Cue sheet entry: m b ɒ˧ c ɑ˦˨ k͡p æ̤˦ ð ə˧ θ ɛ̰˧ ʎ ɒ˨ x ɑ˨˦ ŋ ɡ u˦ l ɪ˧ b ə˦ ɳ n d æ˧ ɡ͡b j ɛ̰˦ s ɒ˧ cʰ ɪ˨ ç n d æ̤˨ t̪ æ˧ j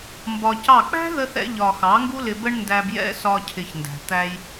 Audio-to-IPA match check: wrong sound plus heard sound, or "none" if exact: ɡ͡b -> b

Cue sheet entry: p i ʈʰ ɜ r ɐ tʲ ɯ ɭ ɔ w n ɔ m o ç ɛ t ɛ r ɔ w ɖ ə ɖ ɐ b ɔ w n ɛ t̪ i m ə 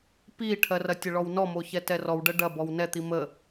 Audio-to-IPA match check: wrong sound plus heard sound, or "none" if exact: ɯ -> ə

